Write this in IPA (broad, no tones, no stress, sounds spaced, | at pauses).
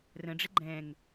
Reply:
r ə̃ ɖ͡ʐ ɪ ɡ͡ǃ ɛ̃ ŋ